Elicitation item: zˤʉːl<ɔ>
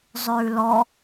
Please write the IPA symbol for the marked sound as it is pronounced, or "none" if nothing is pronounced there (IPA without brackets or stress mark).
ɔ